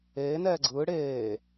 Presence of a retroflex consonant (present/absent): present